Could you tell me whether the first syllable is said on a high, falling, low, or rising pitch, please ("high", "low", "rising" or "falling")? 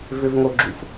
high